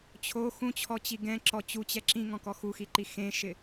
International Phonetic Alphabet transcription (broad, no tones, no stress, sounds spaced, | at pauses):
t͡ɕʰ o x ũ t͡ɕʰ ɔ t͡ɕ i ɡ ɛ̃ ǁ ɔ t͡ɕ u t͡ɕ ɛ ǁ ĩ ŋ ɔ̃ k ɔ x u x i ǃ i x ẽ ʃ ɪ